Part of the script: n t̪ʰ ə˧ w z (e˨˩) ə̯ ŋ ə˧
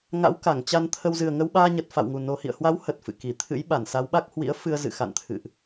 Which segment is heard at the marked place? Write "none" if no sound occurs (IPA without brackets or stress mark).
ɨ˨˩